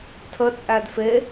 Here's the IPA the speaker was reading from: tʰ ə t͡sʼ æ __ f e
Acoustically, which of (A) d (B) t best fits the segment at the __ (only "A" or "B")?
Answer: A